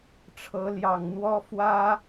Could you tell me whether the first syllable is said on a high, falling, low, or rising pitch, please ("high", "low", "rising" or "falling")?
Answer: rising